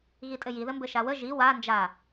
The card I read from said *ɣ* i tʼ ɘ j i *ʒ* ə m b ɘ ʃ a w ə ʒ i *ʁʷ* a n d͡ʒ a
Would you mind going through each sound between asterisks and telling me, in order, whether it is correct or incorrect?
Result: correct, incorrect, incorrect

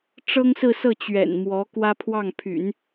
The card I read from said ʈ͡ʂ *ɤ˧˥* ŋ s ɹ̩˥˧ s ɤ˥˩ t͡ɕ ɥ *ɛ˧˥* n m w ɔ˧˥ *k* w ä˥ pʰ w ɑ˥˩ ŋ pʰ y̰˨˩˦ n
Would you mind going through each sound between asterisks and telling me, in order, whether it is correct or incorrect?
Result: incorrect, incorrect, correct

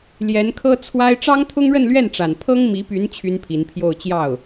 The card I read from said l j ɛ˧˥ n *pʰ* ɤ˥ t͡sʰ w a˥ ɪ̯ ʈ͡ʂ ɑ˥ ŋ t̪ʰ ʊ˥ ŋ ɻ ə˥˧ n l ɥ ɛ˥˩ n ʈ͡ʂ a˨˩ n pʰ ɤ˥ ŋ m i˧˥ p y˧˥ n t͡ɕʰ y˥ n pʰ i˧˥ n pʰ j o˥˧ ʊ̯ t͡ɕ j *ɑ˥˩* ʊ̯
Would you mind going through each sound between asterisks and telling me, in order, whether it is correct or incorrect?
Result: incorrect, correct

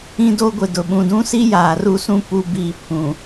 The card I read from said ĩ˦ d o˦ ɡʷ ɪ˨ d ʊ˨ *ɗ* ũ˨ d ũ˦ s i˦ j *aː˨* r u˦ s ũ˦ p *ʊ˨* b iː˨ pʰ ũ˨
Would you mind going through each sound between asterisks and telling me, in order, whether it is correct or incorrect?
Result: incorrect, correct, incorrect

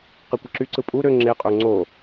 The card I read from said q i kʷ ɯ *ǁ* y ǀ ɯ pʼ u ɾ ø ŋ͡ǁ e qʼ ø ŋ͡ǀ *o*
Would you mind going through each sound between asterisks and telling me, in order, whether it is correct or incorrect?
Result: correct, correct

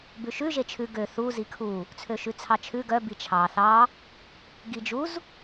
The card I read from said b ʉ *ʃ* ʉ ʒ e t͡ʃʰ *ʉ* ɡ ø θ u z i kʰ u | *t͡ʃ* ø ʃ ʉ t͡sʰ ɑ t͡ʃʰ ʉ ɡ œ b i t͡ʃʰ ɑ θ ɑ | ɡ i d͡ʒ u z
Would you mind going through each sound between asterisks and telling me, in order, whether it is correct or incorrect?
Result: correct, correct, incorrect

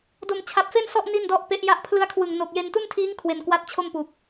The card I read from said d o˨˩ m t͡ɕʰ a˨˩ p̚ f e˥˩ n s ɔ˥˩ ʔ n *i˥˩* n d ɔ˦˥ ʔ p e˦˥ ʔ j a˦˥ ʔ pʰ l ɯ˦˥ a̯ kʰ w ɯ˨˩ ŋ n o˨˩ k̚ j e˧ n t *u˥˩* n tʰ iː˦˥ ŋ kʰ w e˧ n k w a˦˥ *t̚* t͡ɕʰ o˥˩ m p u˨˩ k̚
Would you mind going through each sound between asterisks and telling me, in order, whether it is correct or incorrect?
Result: correct, correct, correct

